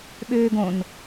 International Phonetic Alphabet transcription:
ɓ øː ɡ õ n

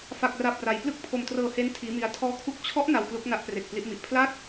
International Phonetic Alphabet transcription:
f a˥˩ k̚ r a˥˩ p̚ r a˧ j p l ɯ˥˩ k̚ pʰ o˧ m t r ɤː˧ h e˦˥ n tʰ iː˦˥ m i˦˥ a̯ tʰ ɔː˦˥ kʰ u˦˥ k̚ t͡ɕʰ ɔ˦˥ ʔ n a˧ w k l u˦˥ k̚ n a˦˥ ʔ p r e˨˩ k̚ p l i˦˥ ʔ m i˨˩ ʔ pʰ l a˥˩ t̚

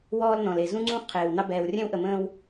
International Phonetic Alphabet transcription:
w ɔː˦ l n ɔ̃˨ l e˨ z ũ˦ ŋ͡ǀ ũ˦ χ qʰ eː˨ w n ɑ˦ b ɛː˨ w rʲ ɛ̃˦ w ʔ ə˨ m ə̃ː˦ w

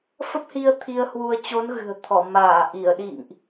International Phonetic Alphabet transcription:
f ə˦˥ p̚ h i˧ ə̯ t̪ʰ i˧ ə̯ h w u˧ ə̯ t͡ɕ o˨˦ n ɣ ɨ̤˨˩ ə̯ t̪ʰ ɔ˧˩ m aː˧˩ ʔ i˧˩ ə̯ ɗ ḭ˧˨ ŋ ʔ

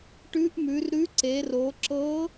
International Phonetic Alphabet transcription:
ʈ ʉ˧˥ ʔ m ʉ˩˧ r ɾ ʉ˧˥ ǀ e˩˧ r o˩˧ ǁ ɤ˧˥

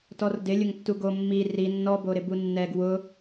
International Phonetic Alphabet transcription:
t ɔ r d ɪ lʲ ʊ ŋ tː u ɡ o mː i r i nː ɔ b o ɾ ɪ b u nː ɛ ɡ w ʊ

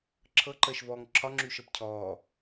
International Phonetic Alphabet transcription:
ǁʰ ɤ ǃ əː ʃ v ɔː ŋ ǁʰ ɒ ŋ͡ǁ yː ʃ ɤ p cʰ ɔː

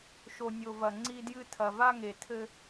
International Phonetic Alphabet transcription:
ʃ o˨ nʲ o˨ v ɐ˨ ŋ͡ǀ i˦ d j ɨ˦ tʰ ɐ˨ v a˦ ŋ e˨ tʰ ɘ˦

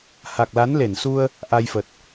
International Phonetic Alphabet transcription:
h a˨˩ k̚ l a˨˦ n l e˧˩ n s u˧ ə̯ | ʔ a˧ j f ə˨˩ t̚

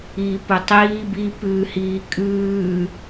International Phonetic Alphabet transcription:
iː p ʊ tˤ iː b i p ʉː h iː kʼ ʉː

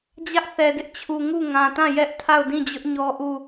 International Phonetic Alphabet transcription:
d͡ʑ ä˦ ʔ θ ɛ˨ d ɪ˦ ʔ t͡ɕʰ u˨ ŋ u˦˨ ŋ ã˨ t ã˦˨ j ɛ˦ ʔ tʰ a˦˨ ʊ̯ d ĩ˦˨ d͡ʑ ʊ˦ ʔ ɲ ɔ˦ ʔ u˦˨

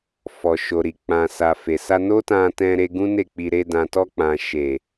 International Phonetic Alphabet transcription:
f ɔ˨ ʃ o˨ ɾ i˨ k͡p ã˨ s a˨ f e˨ s a˧ n o˦ t ã˧ t ɛ̃˧ ɾ e˧ ɡ ũ˦ n e˦˨ k͡p i˧ ɾ e˧ d ã˨ t ɔ˧ k͡p ã˨ ʃ e˨

